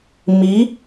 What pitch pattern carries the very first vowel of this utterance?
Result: rising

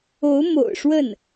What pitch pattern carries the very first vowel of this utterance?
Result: rising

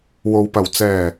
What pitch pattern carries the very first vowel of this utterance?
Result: low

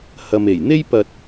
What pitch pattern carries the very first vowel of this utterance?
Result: low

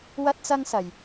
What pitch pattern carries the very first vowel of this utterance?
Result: high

